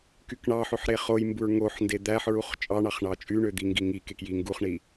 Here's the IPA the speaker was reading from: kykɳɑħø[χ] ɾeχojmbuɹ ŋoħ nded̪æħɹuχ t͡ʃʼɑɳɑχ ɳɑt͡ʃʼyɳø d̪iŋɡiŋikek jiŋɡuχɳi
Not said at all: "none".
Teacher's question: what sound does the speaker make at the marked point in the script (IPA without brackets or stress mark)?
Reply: ħ